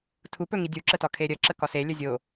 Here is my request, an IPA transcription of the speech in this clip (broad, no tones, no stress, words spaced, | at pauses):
tʰupɵŋi dʲuǁətɒ kʰeɾʲə ǁəkɒse lʲəzʲo